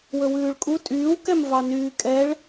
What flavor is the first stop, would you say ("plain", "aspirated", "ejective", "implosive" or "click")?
ejective